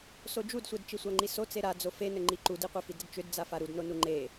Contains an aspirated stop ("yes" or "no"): no